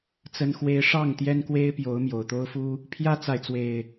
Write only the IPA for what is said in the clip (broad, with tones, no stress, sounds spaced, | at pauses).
t͡s ə˦ n x w e˦ ɪ̯ ʂ ɑ˥˨ ŋ t̪ j ɛ˦ n k w e˦ ɪ̯ p j o˨˦ ʊ̯ m j o˨˩ ʊ̯ t̪ o˦ ʊ̯ f u˦ | pʰ j ä˦ t͡s a˨ ɪ̯ t͡s w e˨˩ ɪ̯